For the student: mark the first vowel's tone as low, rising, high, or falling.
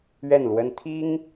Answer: falling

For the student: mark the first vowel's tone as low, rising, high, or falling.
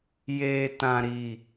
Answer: low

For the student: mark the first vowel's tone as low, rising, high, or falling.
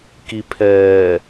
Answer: low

